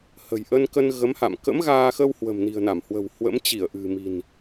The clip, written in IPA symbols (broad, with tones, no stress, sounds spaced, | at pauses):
h ə̤˨˩ j ʔ ə˧ n k ə˧ n ɣ ə˨˦ m h a̰˧˨ m k ə̰˧˥ m ɣ aː˧ x ə˧ w h w ə̤˨˩ m n i̤˨˩ ə̯ n a˧˩ m h w ə̤˨˩ w h w ə̰˧˥ m t͡ɕ i˧˩ ə̯ ʔ ɨ̤˨˩ m i̤˨˩ n